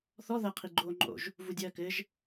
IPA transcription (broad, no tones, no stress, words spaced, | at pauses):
θɔ ðɐqʰi ɡ͡ǃoːŋ͡ǃo̰ʒ | vudʲɐːkɘʒ